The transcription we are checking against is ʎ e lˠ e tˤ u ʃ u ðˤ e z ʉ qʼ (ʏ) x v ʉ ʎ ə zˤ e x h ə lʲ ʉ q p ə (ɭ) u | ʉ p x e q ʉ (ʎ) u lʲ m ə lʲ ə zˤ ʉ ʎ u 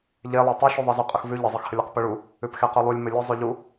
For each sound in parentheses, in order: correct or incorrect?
incorrect, correct, incorrect

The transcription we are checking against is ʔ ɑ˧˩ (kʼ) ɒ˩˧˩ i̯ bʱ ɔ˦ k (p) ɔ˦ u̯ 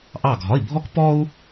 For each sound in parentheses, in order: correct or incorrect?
incorrect, correct

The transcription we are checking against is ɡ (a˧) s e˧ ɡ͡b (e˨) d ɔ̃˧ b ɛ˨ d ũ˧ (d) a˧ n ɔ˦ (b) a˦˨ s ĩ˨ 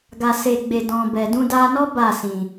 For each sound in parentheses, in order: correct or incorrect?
correct, incorrect, correct, correct

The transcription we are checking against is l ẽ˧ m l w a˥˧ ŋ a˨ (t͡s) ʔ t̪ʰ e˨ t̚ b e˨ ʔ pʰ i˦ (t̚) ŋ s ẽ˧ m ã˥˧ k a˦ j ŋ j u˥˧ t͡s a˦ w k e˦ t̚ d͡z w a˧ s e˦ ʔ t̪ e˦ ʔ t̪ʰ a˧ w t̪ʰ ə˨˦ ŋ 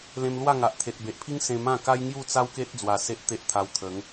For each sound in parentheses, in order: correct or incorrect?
incorrect, incorrect

